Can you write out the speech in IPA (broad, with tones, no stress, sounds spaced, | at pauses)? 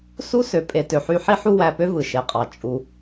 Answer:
s u˦ s ø˨ pʼ e˨ t ø˨ ħ y˦ ħ i˦ ħ u˦ w æ˧ p ø˦ v ɯ˨ ʃ e˨ qʼ ɑ˨ t͡ʃʼ u˧